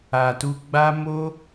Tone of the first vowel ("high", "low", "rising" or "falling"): low